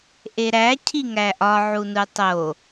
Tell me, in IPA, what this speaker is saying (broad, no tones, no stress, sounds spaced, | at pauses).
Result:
ʔ e ɾ æ cʰ i ŋ æ ʔ ɒ ʕ u n u tˤ o